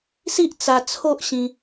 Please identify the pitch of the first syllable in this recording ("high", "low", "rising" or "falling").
high